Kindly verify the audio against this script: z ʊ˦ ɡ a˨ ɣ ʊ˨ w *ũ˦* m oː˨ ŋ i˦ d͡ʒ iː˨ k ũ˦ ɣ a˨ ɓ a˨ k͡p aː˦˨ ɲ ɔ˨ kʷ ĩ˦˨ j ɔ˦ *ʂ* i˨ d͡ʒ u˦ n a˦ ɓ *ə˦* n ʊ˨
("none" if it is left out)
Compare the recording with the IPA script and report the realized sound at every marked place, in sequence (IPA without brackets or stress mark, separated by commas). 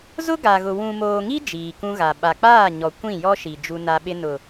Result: ũ˨, ʃ, ɪ˦